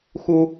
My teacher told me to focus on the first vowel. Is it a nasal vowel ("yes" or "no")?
no